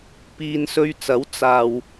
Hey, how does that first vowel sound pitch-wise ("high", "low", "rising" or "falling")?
low